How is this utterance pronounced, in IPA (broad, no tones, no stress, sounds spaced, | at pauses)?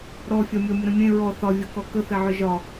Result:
ɾ ɔ fʲ ɒ mʲ ɔ mʲ ə ɾ ə̃ mʲ ẽ ɹ ɔ θ ɒ vʲ ɔ k ɔ k ə θ e ʕ ʏ ʒ ɒ